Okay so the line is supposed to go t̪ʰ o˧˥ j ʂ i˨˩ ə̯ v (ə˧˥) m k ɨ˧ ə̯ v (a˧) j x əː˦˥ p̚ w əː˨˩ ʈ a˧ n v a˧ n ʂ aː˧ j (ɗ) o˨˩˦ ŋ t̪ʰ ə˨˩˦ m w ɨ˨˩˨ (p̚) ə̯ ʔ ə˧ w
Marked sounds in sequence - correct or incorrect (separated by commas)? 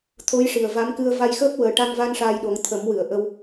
incorrect, correct, correct, incorrect